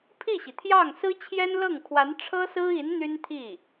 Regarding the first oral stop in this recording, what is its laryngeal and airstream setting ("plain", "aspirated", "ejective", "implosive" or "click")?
aspirated